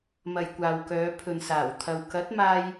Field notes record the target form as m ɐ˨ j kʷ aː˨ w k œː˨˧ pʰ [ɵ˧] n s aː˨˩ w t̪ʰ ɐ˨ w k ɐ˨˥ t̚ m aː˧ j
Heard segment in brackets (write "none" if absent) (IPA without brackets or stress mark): ɵ˨